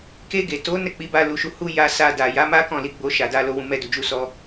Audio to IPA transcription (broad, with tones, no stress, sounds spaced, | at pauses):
k e˧ ɡ e˨ t o˨˦ n ɛ˦˨ k͡p i˨˦ b a˧ l u˧ ʃ u˧ h u˦ j a˧ s a˧ d a˨ j a˨˦ m a˦ k ɔ̃˦˨ l i˨˦ ɡ͡b o˧ ʃ a˨ d a˧ l o˨ w ũ˨ m ɛ˧ d u˨ d͡ʒ u˧ s ɔ˧